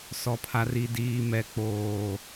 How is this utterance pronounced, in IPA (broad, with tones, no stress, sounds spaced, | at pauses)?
s ɔ˨ pʰ a˨ r i˨ d iː˨ m ɛ˨ k͡p oː˨